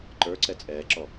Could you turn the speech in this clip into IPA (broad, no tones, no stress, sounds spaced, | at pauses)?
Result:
ǃ ə˞ ǀ ɛ t͡sʼ ɛː ǁ ɔ